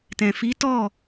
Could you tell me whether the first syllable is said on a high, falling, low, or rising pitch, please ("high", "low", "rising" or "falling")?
low